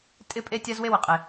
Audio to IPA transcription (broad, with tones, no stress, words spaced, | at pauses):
tʼɪ˦pʼe˦tʲa˦z we˦wɪ˨qʼe˨